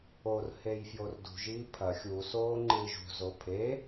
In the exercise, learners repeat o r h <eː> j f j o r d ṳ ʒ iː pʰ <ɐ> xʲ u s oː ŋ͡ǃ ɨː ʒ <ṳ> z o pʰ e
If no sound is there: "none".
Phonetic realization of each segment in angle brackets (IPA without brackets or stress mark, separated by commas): e, ɐ, ṳ